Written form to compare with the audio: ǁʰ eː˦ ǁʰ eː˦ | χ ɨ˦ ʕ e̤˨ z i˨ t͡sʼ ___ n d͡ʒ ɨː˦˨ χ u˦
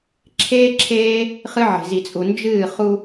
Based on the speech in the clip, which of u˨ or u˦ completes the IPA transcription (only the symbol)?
u˨